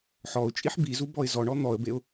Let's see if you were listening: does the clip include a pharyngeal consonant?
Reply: yes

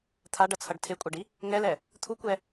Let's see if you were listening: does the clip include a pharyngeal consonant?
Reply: no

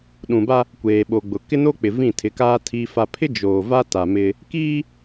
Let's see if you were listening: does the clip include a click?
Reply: no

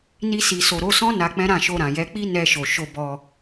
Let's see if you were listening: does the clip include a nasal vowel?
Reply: yes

